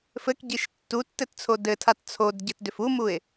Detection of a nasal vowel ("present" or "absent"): absent